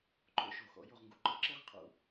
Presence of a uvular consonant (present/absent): present